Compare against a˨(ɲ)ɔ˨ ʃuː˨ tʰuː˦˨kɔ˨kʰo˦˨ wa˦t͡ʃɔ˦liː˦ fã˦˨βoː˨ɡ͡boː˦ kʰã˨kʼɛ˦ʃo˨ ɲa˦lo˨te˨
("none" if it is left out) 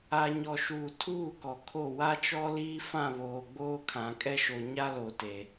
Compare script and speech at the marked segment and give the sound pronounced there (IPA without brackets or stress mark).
ɲ